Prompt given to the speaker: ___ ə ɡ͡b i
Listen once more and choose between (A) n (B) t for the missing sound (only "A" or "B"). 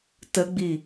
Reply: B